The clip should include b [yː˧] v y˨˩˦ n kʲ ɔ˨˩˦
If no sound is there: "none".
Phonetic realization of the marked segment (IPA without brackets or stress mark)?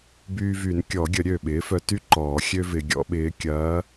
yː˧